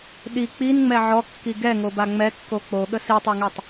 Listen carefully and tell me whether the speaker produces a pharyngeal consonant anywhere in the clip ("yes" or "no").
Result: yes